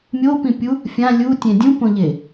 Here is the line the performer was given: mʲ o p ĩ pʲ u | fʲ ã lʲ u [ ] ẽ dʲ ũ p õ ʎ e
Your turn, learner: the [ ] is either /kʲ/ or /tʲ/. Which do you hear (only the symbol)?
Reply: tʲ